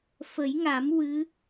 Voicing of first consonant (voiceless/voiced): voiceless